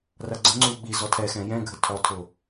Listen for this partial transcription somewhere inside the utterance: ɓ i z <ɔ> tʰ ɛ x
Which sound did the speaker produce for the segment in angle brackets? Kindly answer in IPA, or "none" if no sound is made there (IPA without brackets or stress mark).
ɔ